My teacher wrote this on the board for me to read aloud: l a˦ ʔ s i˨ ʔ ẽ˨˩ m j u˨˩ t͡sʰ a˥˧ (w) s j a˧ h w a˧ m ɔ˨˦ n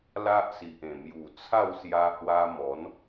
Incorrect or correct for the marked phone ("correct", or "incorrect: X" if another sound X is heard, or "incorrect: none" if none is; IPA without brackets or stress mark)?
correct